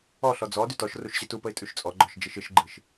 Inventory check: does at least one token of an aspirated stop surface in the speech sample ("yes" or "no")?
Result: no